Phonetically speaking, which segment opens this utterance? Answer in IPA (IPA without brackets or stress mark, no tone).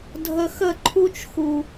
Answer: dʱ